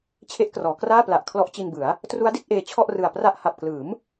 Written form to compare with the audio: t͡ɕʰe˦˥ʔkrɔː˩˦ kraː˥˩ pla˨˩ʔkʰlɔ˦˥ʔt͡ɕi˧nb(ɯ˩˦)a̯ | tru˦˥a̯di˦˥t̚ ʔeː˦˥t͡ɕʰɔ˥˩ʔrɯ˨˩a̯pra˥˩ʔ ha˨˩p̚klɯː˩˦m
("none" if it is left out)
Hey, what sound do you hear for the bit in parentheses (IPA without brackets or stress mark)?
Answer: ɯ˩˦